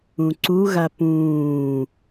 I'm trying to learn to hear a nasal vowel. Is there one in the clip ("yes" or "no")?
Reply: yes